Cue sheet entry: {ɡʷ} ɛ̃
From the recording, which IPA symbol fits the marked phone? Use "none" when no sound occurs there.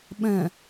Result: ɓ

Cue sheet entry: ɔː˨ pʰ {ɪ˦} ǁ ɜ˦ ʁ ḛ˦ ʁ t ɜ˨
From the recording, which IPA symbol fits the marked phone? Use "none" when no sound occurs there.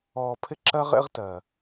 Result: ɪ˦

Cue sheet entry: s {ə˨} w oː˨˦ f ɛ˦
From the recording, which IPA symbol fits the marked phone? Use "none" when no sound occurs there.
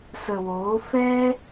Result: ə˨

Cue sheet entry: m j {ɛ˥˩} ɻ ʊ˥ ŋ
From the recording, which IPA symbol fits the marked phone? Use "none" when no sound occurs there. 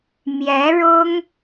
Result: ɛ˧˥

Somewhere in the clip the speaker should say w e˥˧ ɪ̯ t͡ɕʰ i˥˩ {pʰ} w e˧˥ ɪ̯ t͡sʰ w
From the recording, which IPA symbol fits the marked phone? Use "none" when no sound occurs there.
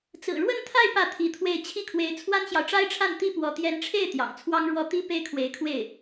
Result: kʰ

